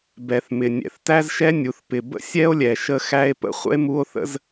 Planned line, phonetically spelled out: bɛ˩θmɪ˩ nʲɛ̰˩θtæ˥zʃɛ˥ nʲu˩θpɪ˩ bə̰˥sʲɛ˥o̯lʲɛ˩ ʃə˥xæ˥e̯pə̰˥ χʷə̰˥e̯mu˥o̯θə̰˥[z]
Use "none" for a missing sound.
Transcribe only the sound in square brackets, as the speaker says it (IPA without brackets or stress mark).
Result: z